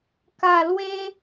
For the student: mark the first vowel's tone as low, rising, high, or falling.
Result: low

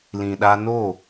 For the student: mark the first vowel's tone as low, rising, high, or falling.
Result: low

